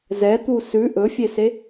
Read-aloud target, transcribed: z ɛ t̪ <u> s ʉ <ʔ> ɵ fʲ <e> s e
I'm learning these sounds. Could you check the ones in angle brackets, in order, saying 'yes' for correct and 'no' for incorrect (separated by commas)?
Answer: yes, yes, yes